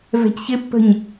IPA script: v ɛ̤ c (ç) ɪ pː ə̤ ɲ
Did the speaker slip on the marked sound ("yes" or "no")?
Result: no